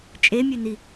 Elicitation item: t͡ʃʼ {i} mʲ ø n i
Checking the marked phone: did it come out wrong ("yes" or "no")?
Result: yes